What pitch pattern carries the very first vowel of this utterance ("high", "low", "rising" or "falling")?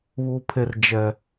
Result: low